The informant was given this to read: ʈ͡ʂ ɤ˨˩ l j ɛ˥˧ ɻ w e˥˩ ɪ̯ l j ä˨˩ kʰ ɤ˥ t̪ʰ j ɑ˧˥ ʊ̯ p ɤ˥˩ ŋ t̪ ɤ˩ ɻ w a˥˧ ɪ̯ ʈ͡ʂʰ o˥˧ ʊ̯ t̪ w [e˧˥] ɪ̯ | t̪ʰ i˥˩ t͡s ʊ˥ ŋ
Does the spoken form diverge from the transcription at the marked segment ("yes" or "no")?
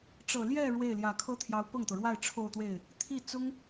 yes